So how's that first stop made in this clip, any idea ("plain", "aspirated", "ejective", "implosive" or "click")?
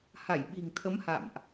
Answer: implosive